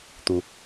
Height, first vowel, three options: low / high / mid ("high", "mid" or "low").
high